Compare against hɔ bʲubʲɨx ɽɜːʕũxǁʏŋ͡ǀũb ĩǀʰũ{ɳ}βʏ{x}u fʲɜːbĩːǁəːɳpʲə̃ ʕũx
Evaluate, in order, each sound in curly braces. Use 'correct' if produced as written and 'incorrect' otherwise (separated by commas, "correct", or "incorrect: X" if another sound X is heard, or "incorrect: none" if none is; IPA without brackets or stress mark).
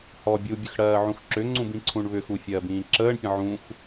correct, correct